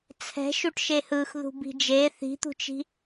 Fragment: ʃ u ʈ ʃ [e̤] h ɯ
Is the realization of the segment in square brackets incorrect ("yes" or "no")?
yes